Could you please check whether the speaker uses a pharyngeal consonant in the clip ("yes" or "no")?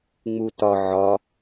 yes